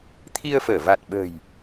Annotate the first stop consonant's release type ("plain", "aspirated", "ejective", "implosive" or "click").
aspirated